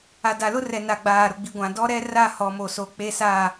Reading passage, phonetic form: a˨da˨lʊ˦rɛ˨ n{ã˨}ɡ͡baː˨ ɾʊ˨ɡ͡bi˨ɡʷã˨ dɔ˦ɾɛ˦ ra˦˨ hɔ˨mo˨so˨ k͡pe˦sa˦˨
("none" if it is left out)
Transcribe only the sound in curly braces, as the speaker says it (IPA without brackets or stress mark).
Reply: a˨